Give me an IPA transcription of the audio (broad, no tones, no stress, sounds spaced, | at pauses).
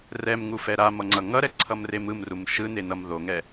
r ɛ m ŋ u f ɛ ɾ a m ʌ ŋ͡ǀ ʌ ŋ ʌ ɾ ɛ ǀʰ ʌ m r e m ɯ m r u m ʃ ɯ n e n ʌ m ð o ŋ ɛ